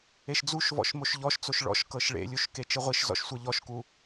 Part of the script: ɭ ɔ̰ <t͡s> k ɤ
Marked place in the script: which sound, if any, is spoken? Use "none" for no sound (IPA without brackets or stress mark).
ʃ